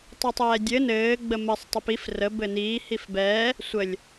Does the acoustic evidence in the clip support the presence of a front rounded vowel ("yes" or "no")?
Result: no